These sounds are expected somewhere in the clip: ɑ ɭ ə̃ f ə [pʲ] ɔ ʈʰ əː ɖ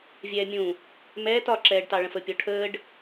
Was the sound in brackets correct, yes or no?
yes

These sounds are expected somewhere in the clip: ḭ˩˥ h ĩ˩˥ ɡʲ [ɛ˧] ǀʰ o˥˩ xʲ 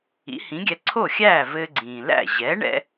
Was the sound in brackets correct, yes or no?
yes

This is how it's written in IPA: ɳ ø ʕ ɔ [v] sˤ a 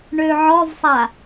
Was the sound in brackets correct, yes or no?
yes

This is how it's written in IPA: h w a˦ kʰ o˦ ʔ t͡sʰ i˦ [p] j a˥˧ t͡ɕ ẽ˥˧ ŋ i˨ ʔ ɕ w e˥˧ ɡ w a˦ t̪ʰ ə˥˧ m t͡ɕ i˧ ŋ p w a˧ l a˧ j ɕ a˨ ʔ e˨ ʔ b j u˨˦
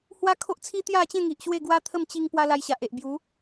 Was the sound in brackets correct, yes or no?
no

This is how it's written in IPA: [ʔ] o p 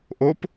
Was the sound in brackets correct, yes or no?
yes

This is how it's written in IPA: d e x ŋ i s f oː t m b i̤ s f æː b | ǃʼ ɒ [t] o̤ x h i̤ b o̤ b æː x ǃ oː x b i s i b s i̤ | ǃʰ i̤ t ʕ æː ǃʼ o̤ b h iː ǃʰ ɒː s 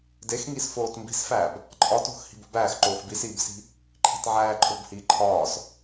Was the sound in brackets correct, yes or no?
yes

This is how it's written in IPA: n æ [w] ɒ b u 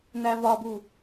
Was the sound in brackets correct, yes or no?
no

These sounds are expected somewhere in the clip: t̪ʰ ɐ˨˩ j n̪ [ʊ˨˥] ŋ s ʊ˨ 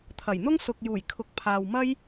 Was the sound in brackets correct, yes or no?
no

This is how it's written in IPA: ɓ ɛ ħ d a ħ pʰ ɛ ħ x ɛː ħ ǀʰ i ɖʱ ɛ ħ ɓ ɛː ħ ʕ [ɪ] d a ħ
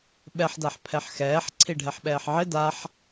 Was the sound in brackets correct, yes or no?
yes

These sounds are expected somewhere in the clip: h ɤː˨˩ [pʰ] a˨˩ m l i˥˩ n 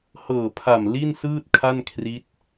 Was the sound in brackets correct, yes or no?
yes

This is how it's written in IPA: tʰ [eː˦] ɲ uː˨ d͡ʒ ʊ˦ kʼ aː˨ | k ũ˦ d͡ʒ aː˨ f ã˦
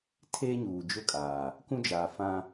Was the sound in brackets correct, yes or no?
yes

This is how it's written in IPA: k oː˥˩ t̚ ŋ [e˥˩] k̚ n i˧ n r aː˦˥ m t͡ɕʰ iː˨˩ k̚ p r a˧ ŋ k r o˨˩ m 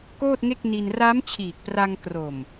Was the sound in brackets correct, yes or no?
yes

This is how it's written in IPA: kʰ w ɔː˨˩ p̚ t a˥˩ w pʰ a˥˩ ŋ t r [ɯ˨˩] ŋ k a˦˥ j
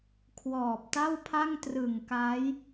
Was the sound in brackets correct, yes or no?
yes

